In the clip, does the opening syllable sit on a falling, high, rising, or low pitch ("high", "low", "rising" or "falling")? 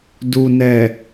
low